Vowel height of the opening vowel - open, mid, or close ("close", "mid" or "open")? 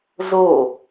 mid